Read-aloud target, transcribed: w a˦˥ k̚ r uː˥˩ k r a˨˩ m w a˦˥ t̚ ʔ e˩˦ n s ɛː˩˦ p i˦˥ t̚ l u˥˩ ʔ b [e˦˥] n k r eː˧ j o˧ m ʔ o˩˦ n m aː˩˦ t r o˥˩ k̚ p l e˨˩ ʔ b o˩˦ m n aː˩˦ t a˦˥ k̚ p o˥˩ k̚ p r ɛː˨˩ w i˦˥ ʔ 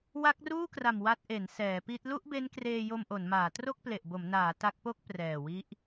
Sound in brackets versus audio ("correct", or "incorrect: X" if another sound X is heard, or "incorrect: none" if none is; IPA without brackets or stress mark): correct